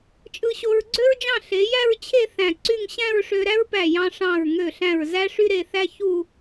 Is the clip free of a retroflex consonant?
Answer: no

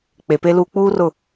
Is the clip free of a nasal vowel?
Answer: yes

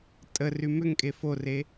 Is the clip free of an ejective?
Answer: no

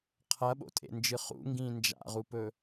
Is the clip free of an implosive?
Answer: no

